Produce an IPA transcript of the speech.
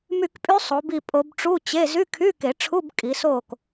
my˦˨kpʼy˦˥sˤo˨˦bi˦˨ pʼo˦˥b ʈ͡ʂu˧˥˧t͡ɕe˧˥˧ zy˧˥˧kʰy˧˥˧ke˨˩˦ʈ͡ʂʰu˧˥˧b kʼi˨˦so˦˨k

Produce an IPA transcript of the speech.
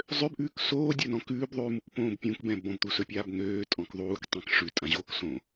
zˤøbʔʉːk soːdʲɵnɔ̃ kʉːbðˤʉːmukpõːb pʲũkbɛ̃ bɔ̃bt̪usɵpʲaːb n̪øːtʼɔ̃k ðˤuːktˤɛ̃k ʂʉtʼãʑoːk sõ

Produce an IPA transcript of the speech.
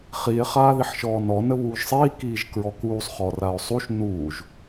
χie̯ χaːðiħʃɔːnɔ nəβuːʒsˤiː kiːʒkɹɔkuːsˤ χɔrao̯sˤuʃ nuːʒ

